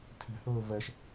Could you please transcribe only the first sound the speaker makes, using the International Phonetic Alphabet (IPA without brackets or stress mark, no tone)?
tʰ